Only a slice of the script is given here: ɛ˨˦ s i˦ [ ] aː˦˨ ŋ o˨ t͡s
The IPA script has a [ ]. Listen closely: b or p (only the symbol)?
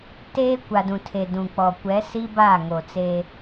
b